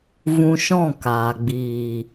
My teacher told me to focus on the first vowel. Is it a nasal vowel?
yes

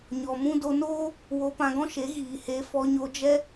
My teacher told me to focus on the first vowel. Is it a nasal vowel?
no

